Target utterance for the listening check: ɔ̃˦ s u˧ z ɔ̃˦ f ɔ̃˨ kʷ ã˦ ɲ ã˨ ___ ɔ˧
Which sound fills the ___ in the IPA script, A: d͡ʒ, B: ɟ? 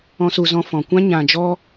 A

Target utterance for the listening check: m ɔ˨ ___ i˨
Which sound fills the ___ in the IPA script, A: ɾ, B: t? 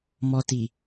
B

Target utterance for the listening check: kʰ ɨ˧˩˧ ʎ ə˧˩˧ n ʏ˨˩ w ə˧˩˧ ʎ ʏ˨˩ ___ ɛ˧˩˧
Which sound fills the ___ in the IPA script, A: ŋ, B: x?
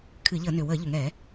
A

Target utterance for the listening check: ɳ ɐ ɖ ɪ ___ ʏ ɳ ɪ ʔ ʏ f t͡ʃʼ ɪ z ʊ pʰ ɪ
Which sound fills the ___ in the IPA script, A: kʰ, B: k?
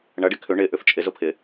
A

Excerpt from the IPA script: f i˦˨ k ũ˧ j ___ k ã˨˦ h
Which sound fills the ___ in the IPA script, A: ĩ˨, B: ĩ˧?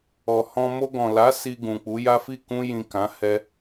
A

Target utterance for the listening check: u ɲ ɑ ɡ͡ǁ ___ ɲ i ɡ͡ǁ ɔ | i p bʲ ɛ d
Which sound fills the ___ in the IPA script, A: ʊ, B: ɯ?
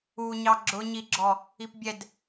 A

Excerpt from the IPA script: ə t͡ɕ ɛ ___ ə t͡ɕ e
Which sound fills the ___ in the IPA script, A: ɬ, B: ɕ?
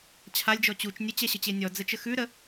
B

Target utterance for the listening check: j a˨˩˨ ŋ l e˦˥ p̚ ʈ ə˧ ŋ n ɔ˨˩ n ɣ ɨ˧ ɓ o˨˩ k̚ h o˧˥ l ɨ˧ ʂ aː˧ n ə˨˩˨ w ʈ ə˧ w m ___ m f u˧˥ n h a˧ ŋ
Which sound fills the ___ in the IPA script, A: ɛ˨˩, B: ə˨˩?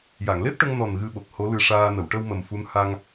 B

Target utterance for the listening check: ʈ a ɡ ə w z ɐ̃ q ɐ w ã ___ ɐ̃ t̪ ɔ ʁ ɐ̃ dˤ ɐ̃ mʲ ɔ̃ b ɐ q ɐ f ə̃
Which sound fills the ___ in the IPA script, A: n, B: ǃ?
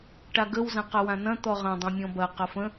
A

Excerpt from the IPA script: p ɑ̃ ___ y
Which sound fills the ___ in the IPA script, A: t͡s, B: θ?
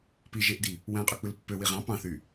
B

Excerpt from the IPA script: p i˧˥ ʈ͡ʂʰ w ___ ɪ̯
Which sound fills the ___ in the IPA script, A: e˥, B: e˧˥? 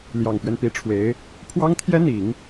B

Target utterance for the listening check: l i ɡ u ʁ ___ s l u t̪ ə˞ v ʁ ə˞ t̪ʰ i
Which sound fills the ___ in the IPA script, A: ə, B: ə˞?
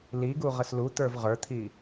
A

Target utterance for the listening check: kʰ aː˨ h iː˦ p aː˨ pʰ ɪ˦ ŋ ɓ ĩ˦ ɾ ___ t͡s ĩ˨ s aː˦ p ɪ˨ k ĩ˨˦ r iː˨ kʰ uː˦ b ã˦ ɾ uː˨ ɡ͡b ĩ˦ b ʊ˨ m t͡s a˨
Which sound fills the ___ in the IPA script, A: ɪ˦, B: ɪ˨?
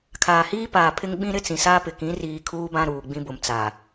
A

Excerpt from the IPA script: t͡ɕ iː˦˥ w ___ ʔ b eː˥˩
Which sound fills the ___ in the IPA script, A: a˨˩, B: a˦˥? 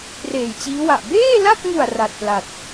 A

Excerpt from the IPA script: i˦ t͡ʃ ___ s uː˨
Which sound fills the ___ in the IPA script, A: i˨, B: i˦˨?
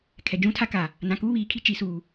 A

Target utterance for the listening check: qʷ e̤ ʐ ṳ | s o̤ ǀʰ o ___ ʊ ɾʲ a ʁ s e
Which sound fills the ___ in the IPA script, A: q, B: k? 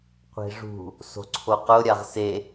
A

